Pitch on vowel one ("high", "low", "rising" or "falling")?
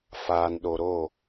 low